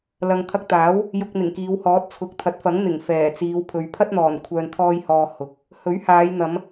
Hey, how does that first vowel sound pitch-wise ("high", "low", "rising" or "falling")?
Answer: low